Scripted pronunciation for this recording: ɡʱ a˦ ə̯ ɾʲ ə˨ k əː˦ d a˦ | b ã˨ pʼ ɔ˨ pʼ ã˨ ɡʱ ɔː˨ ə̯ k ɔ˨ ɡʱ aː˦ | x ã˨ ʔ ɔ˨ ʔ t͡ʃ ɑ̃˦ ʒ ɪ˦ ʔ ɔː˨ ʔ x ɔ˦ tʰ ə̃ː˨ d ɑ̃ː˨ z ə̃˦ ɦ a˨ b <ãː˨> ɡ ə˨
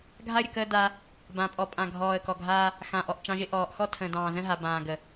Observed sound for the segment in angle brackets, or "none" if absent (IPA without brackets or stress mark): ãː˨